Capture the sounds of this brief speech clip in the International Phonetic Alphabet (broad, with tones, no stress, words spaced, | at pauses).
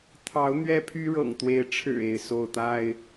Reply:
t̪ʰɑ˨˦ʊ̯ n̪ɥɛ˦pʰy˦ɻɤ̰˨˩ŋt̪we˨˦ɪ̯ ʈ͡ʂʰɻ̩˨˩ e˥˨ɪ̯so˥˨ʊ̯t̪a˥˨ɪ̯